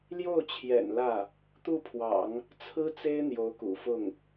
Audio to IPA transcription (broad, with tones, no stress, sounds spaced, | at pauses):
l j o˥˩ ʊ̯ t͡ɕʰ j ɛ̰˨˩ n l ä˥˩ | t̪ u˥˩ pʰ w ɑ̰˨˩˦ ŋ | t͡sʰ ɹ̩˥ t͡s e˥ ɪ̯ n̪ j o˧˥ ʊ̯ k ṵ˨˩ f ʊ˥˩ ŋ